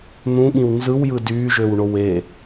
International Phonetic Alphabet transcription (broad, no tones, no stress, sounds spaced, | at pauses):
n̪ ũ ɠ ĩ w n z ɯ w j ɯ d yː ʒ ø w ɳ o w e